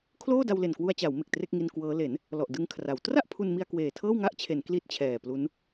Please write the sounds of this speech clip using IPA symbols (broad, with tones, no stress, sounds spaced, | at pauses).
kʰ l oː˥˩ d a˧ w l e˨˩ n k w u˧ a̯ t͡ɕ a˩˦ w m e˨˩ k̚ t r e˥˩ k̚ ŋ i˧ n k w ɤː˦˥ l e˩˦ n | l ɔ˨˩ ʔ d ɯ˧ ŋ kʰ r a˩˦ w t r a˥˩ ʔ pʰ u˧ n m i˧ a̯ k w eː˨˩ tʰ ɤː˥˩ w ŋ a˥˩ ʔ t͡ɕʰ e˩˦ n k l i˦˥ t̚ t͡ɕʰ ɛː˨˩ p l u˦˥ n